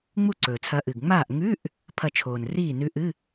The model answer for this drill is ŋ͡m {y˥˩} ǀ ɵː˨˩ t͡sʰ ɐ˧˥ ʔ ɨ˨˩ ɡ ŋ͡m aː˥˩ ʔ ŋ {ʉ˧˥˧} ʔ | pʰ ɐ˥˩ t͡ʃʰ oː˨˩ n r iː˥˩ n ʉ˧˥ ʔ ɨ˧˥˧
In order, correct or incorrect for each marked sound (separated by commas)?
incorrect, correct